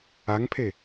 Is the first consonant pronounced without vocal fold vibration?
no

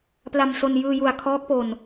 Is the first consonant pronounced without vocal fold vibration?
yes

